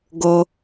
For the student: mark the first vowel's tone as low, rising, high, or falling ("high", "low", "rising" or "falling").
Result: low